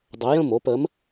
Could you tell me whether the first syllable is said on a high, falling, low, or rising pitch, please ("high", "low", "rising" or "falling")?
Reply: rising